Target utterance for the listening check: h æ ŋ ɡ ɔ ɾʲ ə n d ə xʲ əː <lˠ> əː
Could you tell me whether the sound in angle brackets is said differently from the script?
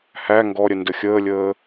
yes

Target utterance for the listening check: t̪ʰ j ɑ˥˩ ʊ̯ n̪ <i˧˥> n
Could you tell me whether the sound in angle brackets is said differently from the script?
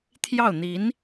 no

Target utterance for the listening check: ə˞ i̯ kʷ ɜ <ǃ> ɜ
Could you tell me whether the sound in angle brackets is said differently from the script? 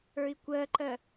no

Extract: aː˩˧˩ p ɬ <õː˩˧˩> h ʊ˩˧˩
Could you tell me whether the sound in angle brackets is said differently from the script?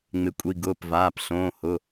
no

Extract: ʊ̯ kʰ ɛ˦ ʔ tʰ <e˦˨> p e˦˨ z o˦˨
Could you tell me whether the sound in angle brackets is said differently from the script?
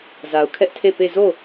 no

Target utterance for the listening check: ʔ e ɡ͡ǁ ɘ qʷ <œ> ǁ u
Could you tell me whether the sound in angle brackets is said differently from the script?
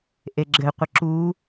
yes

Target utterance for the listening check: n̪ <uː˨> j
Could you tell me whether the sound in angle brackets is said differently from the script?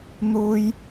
no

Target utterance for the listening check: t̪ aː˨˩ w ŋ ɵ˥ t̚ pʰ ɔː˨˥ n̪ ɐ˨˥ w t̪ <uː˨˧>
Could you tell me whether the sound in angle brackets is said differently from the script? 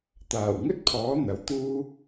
yes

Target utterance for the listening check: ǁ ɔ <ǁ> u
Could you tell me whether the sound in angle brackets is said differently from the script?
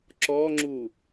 yes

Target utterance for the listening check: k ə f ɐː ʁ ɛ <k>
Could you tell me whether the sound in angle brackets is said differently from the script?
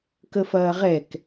no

